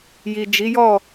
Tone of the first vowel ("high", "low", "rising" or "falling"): low